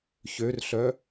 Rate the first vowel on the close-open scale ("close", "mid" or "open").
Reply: mid